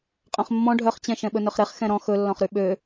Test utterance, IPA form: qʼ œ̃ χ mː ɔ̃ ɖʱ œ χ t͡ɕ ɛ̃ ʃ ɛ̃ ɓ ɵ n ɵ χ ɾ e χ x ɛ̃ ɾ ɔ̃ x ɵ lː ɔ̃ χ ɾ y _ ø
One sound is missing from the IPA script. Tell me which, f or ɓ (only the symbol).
ɓ